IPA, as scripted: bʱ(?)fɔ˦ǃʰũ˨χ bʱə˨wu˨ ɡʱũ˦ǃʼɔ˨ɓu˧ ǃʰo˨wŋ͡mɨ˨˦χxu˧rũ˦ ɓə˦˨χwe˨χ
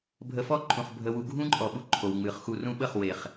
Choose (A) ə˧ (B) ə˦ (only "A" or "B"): A